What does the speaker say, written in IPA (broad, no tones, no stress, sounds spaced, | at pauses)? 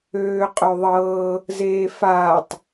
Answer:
øː qʼ ø ðˤ ɤː | z eː f aː tˤ